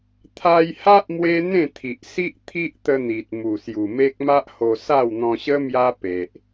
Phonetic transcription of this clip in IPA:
t̪ʰa˧jha˦ʔ mwe˦n̪ẽ˥˧ t̪ʰi˨ʔsi˦ʔ t̪ʰi˦ʔt̪ə˧ n̪i˨t̚ mu˨˩sju˨˩me˦k̚ ma˦ʔho˧sa˥˧w n̪ɔ̃˧ɕə˦ mja˦pe˨ʔ

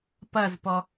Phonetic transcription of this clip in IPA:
pɐzpɔ

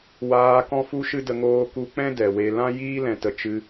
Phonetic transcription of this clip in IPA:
waː˧ kɔ̃˦fu˦ʃɨ˦də˧ ŋoː˧ku˧k͡pɛ̃˦ dɛ˨we˧ lã˦jiː˦lɛ̃˨tə˨ t͡ʃɨ˧

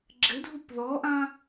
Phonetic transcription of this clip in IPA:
ɡ͡ǁɘdʱup ðɔʔã

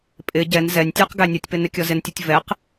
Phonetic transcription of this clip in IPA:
pʼɪ ɟɛn zɛnʲtʲə˞q ɡænʲʌtʲpɪ nɪkʲɔzɪntʲɔtʲ vɛq

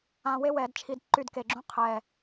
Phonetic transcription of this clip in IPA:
ã˧we˥wɛː˩˧dt͡ʃʰi˧d ǃy˥˧dke˧ɡ͡ǁũ˥qʰɛː˧˩

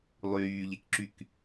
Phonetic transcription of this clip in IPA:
lˠyːʎekǁyk

